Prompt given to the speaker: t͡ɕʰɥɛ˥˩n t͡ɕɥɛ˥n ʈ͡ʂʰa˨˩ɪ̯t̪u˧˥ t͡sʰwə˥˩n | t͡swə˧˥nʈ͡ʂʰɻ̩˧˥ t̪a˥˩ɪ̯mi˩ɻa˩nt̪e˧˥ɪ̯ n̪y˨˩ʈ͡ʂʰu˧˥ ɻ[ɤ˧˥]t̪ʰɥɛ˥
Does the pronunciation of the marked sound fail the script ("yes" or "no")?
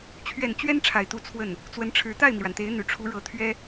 no